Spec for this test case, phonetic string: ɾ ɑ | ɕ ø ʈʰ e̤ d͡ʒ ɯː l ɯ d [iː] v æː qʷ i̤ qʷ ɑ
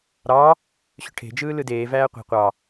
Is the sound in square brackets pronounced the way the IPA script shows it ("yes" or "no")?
no